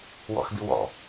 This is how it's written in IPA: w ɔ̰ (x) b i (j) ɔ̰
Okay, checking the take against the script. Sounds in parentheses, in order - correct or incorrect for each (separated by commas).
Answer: correct, incorrect